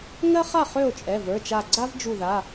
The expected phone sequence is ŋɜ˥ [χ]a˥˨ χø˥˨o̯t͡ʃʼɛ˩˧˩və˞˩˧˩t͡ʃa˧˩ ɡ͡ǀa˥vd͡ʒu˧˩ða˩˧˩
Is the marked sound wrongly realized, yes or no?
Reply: no